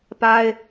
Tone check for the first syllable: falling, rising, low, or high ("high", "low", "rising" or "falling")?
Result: high